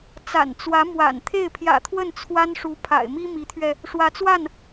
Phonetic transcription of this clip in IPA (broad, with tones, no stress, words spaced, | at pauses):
t͡sa̰˨˩nt͡swä˧˥mwa̰˨˩n t̪ʰe˥˩ɪ̯pʰjä̰˨˩t̪ʰwə˥˩n t͡sʰwa˥nʂu˧˥ pʰa̰˨˩ɪ̯mi˥mi˧˥t̪ʰɥɛ˧ | ʂwä˧˥t͡swa˥˩n